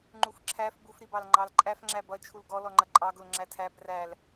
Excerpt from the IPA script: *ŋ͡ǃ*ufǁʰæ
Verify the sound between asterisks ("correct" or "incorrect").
correct